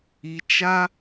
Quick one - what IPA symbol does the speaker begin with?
i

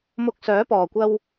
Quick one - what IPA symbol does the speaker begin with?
m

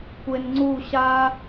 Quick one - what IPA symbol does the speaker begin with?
kʷ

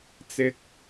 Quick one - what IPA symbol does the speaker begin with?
t͡s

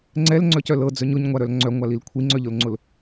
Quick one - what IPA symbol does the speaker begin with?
ŋ͡ǀ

